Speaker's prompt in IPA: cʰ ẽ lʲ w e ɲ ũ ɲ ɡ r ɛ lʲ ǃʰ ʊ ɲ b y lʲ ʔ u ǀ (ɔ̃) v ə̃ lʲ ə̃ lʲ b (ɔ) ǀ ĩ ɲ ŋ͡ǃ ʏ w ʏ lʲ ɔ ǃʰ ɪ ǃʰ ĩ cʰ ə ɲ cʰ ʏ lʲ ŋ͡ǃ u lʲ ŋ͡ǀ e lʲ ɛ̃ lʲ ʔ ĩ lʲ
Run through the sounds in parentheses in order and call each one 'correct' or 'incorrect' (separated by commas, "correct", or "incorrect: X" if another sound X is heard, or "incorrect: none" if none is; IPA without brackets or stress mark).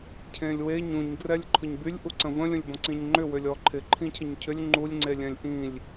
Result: incorrect: ə̃, incorrect: ɔ̃